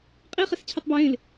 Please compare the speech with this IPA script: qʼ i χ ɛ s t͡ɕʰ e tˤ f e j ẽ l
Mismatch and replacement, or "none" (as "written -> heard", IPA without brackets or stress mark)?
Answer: f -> b